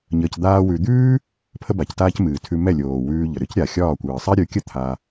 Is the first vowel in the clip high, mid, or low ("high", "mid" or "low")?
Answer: mid